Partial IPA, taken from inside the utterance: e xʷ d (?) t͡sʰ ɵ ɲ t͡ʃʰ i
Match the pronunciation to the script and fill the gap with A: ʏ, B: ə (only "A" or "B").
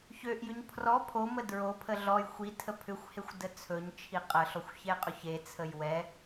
B